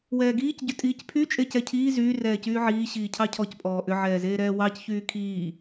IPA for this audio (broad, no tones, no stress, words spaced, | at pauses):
wɛːɡiːc ɟʏtʼiːcpʰy t͡ʃʼecɛcʰiː zyː rɛːcyːʕiː ɕiːcʰɑcʰɔc pʼɔːʔʏ ʕɛːzeːɾɛːwɑc çyːkʰiː